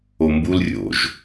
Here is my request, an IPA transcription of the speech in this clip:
o m b u l rʲ o̰ ʒ

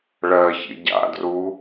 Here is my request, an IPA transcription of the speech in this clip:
ɭ ɜ ç ḭ ɟ a̰ d r u

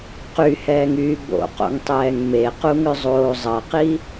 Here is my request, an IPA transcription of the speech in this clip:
q y h ɛː ŋ yː b o̰ q o̰ ŋ tˤ ɛː ŋ m e q u ŋ ʏ zˤ oː zˤ ɐ q i

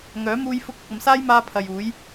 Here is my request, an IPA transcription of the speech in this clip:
ŋ œː˨˥ m uː˧ j f ʊ˧ k̚ ʊ˨ k̚ ɐ˨ m s aː˥ j m aː˧ pʰ ɐ˨ j uː˨˥ j

